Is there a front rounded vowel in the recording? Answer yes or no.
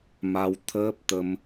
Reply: no